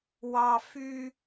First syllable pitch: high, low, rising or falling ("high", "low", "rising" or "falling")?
high